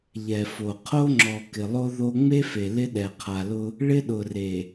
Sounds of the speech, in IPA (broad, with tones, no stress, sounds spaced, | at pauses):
ʎ ɛ˨ f o˨ qʰ o˦ ŋ͡ǁ ɔ˨ k ɪ˨ lˠ o˦ ð o˦ ŋ͡m e˦ f e˨ l ɪ˦ ɗ ɛ˨ qʰ a˨ l ʊ˦ | ɭ ɪ˦ ɗ ʊ˨ r e˨